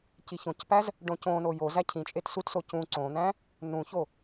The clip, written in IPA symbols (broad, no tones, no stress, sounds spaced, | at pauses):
c i ç õ c p æ z | ɖ õ c õ n o j o z æ cʰ ĩ t͡ʃʼ e t s u t s o c ũ ǀ õ n̪ æ̃ | n ũ ç o